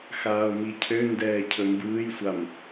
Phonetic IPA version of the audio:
xaːo̯micʰøndɛː cʰɵmbɯːjsʷam

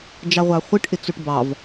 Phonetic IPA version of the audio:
d͡ʒɑʁʷɑχʷɪʈ ʔɪt͡soʈbɑv

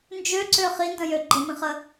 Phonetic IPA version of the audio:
nd͡ʒøǀø χində̃jø ɡ͡ǃəmĩχə

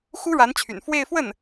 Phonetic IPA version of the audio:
xu˥ɻa˧˥nt͡ɕʰy̰˨˩n fwe˥˧ɪ̯ fwə˥˩n

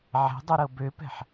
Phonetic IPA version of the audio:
ʕɛ̤dˤuɾɤ bøpɛ̤ħ

